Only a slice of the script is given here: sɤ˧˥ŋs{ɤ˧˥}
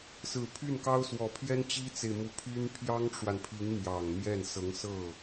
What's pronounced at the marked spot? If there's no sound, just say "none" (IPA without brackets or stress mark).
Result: ɤ˥˩